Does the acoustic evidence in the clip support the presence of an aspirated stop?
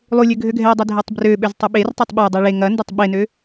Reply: no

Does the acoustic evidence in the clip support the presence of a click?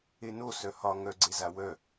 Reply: yes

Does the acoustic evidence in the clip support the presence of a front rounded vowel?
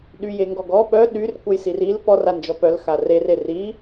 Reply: yes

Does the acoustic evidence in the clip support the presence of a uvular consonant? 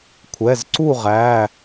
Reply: yes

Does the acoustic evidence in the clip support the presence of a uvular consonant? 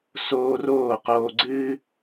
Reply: yes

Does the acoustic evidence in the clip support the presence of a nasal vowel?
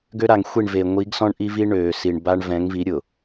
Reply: yes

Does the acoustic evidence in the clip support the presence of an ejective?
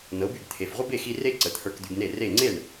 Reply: no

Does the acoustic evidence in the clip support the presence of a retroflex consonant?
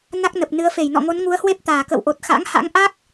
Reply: no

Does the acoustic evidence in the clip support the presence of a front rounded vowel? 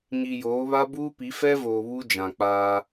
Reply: no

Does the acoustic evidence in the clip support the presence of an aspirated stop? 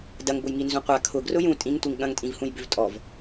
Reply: yes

